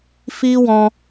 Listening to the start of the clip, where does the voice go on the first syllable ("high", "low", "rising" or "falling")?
high